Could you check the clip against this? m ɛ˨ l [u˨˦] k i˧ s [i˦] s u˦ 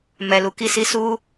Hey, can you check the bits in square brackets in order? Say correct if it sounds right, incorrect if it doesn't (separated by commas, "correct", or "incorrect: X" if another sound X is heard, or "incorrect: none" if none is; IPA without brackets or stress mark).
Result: incorrect: u˨, incorrect: i˧